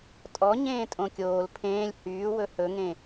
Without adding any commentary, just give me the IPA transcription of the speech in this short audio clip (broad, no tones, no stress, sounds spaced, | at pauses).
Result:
tʼ ɔ ɲ ẽː tʼ õ kʲ oː l pʰ ẽː lʲ h yː w ɵ h ɵ ŋ ẽ